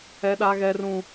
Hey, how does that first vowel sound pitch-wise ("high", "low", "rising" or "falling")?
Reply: high